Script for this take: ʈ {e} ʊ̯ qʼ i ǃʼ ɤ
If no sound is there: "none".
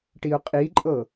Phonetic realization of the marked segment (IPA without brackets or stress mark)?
i